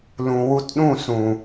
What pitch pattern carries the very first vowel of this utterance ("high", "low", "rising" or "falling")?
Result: low